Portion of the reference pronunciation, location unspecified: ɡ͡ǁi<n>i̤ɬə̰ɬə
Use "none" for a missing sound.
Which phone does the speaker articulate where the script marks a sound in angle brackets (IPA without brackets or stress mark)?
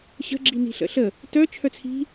n